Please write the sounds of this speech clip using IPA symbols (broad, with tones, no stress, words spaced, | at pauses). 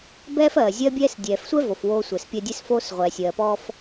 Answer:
bɛː˦fɜː˨zʲɜ˦bʲɛː˦s dʲɛː˨fsʷɛ˦ vo˨fwoː˦sʷɛ˨spʲɜ˦ dʲɛ˦sfoː˦sʁʷɛː˨ sʲɜː˨pɔː˦f